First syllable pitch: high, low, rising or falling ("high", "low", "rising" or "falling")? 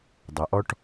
low